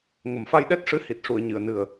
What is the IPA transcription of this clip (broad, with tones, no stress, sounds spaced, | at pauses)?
ŋ ə˨˩ m f a˧ j ɗ ɛ˦˥ t̚ ʂ ɨ˧˥ h i˨˩ t̚ ʂ u˨˩˨ ə̯ ɲ ɨ˨˩˨ ə̯ n ɨ˨˩ ə̯